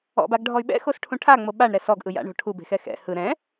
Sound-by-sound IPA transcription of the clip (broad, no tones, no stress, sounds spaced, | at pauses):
ɔ̰ b a ɡ ɖʱ ɔ y̯ ɓ ɛ̰ x o s ʈʰ ũ ʈʰ a ŋ͡m o ɓ a ɳ ɾ ɛ s ɔ ɡ ʔ ɯ j a̰ ɳ o̤ ʈʰ u b e̤ x ɛ x ɛ̰ h ɯ ɾ ɛ̃